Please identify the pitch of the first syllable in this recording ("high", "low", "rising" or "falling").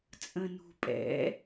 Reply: low